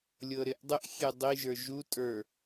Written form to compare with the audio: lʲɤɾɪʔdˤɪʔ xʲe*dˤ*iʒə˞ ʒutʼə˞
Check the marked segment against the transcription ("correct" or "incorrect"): correct